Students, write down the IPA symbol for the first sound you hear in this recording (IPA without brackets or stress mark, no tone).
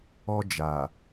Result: ɔ